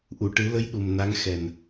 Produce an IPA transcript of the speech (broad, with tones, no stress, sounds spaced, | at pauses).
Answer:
ʔ u˨˩˨ ʈ ɨ˨˩˦ l ə˧˥ j ɗ u˨˩ m n a˧˥ ŋ x ɛ˨˩ n